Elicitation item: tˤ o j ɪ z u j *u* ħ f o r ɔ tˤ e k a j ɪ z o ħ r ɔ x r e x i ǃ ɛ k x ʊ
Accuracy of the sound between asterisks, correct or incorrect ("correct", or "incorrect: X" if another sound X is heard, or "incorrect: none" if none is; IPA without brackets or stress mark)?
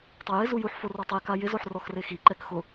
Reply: correct